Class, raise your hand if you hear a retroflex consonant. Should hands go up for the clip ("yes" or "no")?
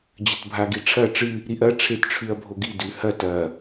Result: yes